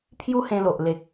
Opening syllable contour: high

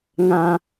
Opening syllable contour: low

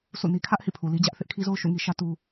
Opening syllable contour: falling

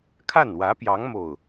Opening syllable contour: falling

